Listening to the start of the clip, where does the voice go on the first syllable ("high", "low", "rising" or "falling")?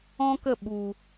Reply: high